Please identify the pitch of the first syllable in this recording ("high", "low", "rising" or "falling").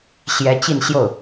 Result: rising